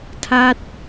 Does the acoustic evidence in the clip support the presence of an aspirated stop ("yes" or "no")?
yes